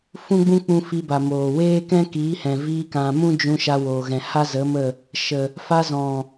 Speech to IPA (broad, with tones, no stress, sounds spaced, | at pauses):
f ũ˦ ɡ͡b ũ˦ k͡p ũ˧ f i˧ b a˨ m oː˨ w eː˦ k ɛ̃˦ k iː˨˦ h ɛ̃˨ v iː˧ k ã˨ m ũ˦ d͡ʒ ũ˧ ʃ a˧ w oː˨ ɣ ɛ̃˨ h a˦ z ə˨˦ m ə˦˨ | ʃ ə˨ | f a˧ z ɔ̃˨